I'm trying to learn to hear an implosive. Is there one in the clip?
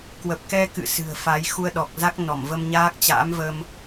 yes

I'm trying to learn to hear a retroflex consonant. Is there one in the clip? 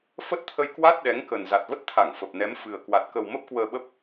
no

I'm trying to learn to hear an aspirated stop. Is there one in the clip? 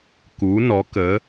no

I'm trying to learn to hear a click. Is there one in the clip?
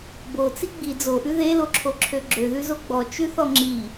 yes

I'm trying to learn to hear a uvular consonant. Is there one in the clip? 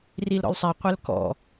yes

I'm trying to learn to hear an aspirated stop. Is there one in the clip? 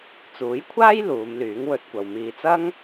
yes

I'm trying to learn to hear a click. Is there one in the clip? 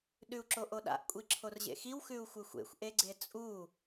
yes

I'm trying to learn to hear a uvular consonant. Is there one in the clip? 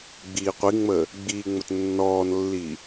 yes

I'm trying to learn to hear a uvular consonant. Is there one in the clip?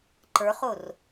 yes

